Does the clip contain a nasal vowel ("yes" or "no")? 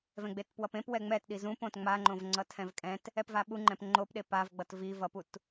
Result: yes